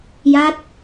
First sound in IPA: j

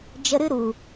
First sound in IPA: d͡ʒ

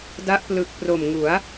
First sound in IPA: d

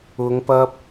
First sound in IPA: ʊ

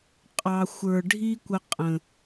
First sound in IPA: qʼ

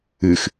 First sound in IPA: ɨ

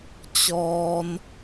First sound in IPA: t͡ɕ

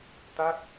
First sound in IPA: t̪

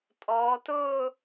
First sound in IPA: tʼ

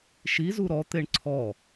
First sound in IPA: ʃ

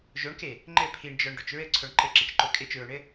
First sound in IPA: ʒ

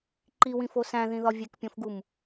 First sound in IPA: ǃ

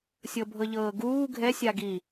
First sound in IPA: sʲ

